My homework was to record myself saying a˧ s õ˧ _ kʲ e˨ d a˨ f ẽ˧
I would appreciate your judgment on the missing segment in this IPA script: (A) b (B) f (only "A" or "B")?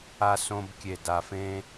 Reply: A